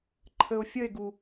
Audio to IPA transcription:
ǃʰ ə o̯ fʲ ə e̯ ɡ u

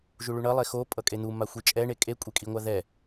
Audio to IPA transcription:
ʒ u ɭ u ɳ ʌ lˠ e x o pʼ ʌ kʼ e n̪ u m a xʷ i t͡ʃʼ ɛ ɳ e kʼ e kʷʼ e kʼ i ŋʷ a ð ɛ

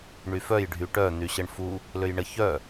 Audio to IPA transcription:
ɳ y f œ j ɖʱ y ʈ œ n̪ y ɕ ə ɳ f u | l ø j ɳ ə ç œ

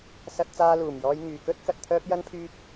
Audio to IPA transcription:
s ɐ˧ t̚ t͡s aː˧ l uː˨˩ m j ɔː˧ j ŋ yː˨ k ɵ˥ t̚ k ɐ˧ t̚ t̪ʰ œː˥ p̚ j ɐ˥ n pʰ yː˥ p̚

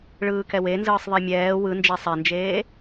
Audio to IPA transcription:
ɭ ɯː k ɛ w e n z ɯː sˤ ðˤ i mʲ ɛː w ɯ n d͡ʒ e sˤ e n d͡ʒ eː

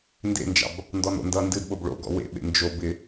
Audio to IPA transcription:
n d ḛ n d͡ʒ ɑ̰ b | n d ɔ n o̰ n d ʌ n d ɨ d ɓ o b ɭ o̰ ɡ ɔ̰ w ḛ ɓ ḛ n d͡ʒ o b ɪ

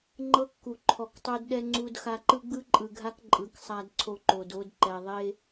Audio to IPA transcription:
ŋ͡ǃ ɤ˦ kː u˨ ǃʰ ɔ˨ k tˤ o˦ d ɗ ɛ˦ ŋ͡ǀ u˦ d x a˦ ǃ ɯ˦ ɡ͡b ɯ˦ ǃʼ ɯ˨ ɡʱ a˦ k ǃʼ ɯ˨ k sˤ a˦ d ǀʰ o˦ ǃ o˨ d o˦ d ǃ ɛ˨ ðˤ e˦

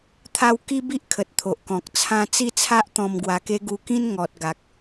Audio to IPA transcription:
t̪ʰ a˧ w k i˦ b i˦ ʔ kʰ ə˨ t̚ t̪ʰ o˨ ʔ k ɔ̃˨ k̚ t͡sʰ ã˧ t͡s i˥˧ t͡sʰ a˦ ʔ t̪ ɔ̃˧ m ɡ w a˧ k e˦ ɡ u˧ k ĩ˦ n ŋ ɔ˨ t̚ ɡ a˨ k̚

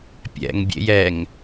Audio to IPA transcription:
pʲ ɛ̰ ŋ bʲ ḛ j ɛ ŋ

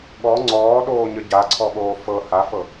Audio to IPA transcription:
ɠ ɔ ŋ͡ǀ ɔː ɗ oː ɲ ə ɟ a ǀʰ ɔ ɠ oː f ɤ h a f ɤ

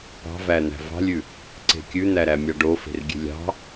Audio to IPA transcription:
p ɑ̤ v æ n̪ æ̤ v ɑ̤ lʲ ʉ | ǀ e̤ kʲ ʉ n̪ æ ɾ æ mʲ ɑ ɖ o f e̤ r ɡʲ e̤ lʲ ɑ̤

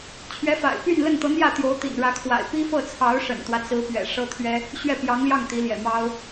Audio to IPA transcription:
t͡ɕʰ ɥ ɛ˧˥ f a̰˨˩ ɪ̯ p y˥˧ n l ə˥˩ n t̪ ɤ˧˥ n̪ j ä˥˩ t̪ j o˧˥ ʊ̯ t̪ ḭ˨˩ n ɻ ä˧˥ kʰ w a̰˨˩ ɪ̯ p i˥ f ɤ˥˩ t͡sʰ ɑ˧˥ ʊ̯ ʂ ə̰˨˩ n t̪ w ä˦ t͡s ɹ̩˧˥ p ɥ ɛ̰˨˩ ʂ ɤ˥ t̪ʰ ɥ ɛ˥ | ɕ ɥ ɛ˥˩ p j ɑ˧˥ ŋ l j ɑ˥˩ ŋ t̪ i˧˥ l j ɛ̰˨˩ m ɑ˥ ʊ̯

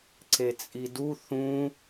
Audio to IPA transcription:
ǀ e t͡sʼ i d u θ ũ

